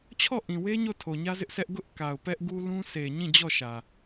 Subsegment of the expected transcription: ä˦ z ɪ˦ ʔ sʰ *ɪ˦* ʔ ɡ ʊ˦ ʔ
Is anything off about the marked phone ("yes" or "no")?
yes